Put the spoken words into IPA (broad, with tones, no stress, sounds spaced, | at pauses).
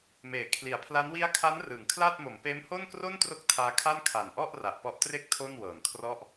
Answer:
m eː˩˦ kʰ l i˩˦ a̯ pʰ l a˦˥ n w i˦˥ a̯ kʰ a˦˥ n r ɯː˩˦ ŋ kʰ l aː˥˩ t̚ m o˩˦ m p eː˦˥ m h o˥˩ n k r o˥˩ n t r o˦˥ k̚ tʰ aː˦˥ kʰ a˥˩ n kʰ a˨˩ n ʔ ɔ˥˩ ʔ r a˨˩ ʔ p ɔ˦˥ ʔ t r e˥˩ k̚ tʰ o˥˩ n w ɤː˨˩ n kʰ r ɔ˥˩ ʔ